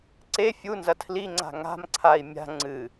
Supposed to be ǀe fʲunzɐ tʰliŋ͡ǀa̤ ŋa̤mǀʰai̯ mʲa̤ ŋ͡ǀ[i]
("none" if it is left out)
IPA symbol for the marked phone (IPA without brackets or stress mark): ɨ